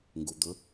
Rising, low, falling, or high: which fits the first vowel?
low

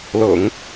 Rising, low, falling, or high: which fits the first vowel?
low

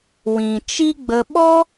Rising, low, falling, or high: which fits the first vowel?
low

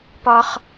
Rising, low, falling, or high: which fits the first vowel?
high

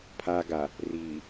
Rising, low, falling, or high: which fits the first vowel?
low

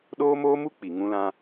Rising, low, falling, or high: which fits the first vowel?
high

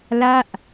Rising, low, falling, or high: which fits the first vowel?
falling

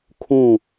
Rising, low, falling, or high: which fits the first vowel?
falling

